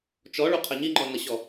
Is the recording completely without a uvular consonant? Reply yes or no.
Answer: no